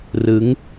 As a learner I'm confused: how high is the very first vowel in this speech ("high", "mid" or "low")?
high